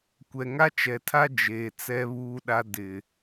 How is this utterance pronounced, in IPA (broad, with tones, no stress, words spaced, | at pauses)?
kʷɛ˨ŋa˦t͡ʃɛ˨tʰa˦ d͡ʒeː˨t͡sɛ˦βuː˦ɗa˦ dɪ˨